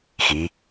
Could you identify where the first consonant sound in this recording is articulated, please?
velar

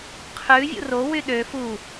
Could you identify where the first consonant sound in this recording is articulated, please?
uvular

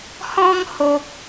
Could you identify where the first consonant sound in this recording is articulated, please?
glottal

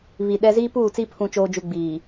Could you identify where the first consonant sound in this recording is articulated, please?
labial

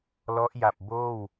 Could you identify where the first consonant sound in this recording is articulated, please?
alveolar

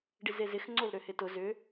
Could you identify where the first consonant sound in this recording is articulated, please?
retroflex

